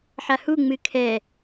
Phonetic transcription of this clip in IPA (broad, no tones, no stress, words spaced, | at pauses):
ħahu ŋ͡mɨkʰɛ